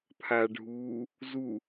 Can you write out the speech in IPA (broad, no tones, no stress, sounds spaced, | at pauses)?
pʰ aː ɖʱ uː | z u